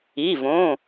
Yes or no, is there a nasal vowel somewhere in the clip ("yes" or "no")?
yes